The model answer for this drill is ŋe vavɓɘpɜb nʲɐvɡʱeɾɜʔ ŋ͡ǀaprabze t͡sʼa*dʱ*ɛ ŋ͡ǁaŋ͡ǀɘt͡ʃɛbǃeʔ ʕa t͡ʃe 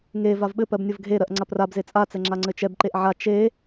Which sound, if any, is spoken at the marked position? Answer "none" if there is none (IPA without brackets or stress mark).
t͡s